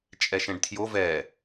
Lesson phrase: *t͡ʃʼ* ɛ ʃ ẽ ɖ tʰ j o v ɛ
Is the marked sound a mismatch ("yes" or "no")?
no